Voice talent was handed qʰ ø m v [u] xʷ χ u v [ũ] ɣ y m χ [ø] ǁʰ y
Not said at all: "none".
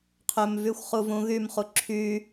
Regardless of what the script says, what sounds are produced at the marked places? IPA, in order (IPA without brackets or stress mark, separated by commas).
y, ũ, u